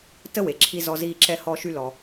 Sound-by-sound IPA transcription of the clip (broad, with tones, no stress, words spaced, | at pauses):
tə˥we˩ǁʰi˧ zɔ˧ziː˧ ǁɛ˧hɔ˧ ʃy˧lɔ˩